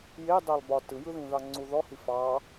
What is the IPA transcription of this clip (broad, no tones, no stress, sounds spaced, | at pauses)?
j e dˤ ɛ lˠ b ɒ t ɯ j ɯ ð ĩ ð ɑ ŋ͡ǀ u ð ɔ h i f ɑ